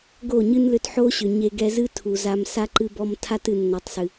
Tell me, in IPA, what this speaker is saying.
ɡ o˦˨ ɲ ɨ˦ n l ʏ˧ t ħ o˦ ɕ ʏ˨ ɲ e˧ ɡ ɛ˧ z ɨ˦ tʰ u˨ z a˧ m s a˦ ǃ ɨ˧ b ɔ˧ m tʰ a˦ t ɨ˨ nː ɔ˨ tˤ s ɨ˨

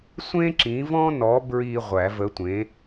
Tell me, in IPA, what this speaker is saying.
sʷ ẽ˥ ǁ ĩ˨˥ v ɔ̃˥ n ɔ˨˥ b ɹ i˧ ʁʷ æ˨˩˦ v ə˨˥ tʷ ẽ˨˥

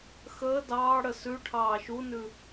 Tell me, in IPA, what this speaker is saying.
x əː d ɑː ɽ ə s ʉ ʈʰ ɑː ʃ u n ʉ

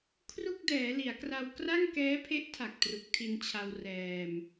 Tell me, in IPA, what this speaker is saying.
kʰ r u˥˩ k̚ d ɛː˩˦ l i˩˦ a̯ k r a˧ w k r a˥˩ ŋ k ɛː˦˥ pʰ e˦˥ ʔ tʰ a˨˩ k̚ t r u˨˩ k̚ tʰ i˧ n t͡ɕʰ a˧ w r ɛː˧ m

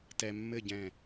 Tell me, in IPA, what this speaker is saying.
t ɛ˧ mː ɘ˥˧ ɟ ɛ̃˧˩

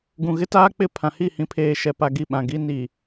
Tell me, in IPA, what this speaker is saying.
ɡ ũ˨ ɣ ɪ˦ t aː˦ k͡p ɪ˦˨ pʰ ã˨ h i˦˨ h ĩ˨ pʰ eː˨ ʃ ɛ˨ p a˨ ɡ i˦˨ ɓ ã˨ ɡ i˦ n i˨

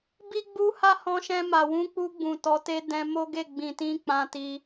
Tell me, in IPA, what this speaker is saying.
b i˦ ɡ͡b u˦ h a˦ h ɔ̃˧ ʃ ɛ̃˧ m a˨ w ũ˧ k͡p u˧ ɡ͡b ũ˨ t ɔ˨˦ t e˦ d ɛ̃˧ m o˦ ɡ e˦˨ ɡ͡b ĩ˨ t ĩ˧ k͡p ã˧ t i˧

